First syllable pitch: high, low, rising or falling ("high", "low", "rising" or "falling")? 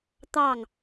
falling